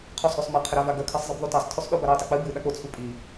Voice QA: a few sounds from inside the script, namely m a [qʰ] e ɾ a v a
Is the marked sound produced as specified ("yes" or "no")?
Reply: yes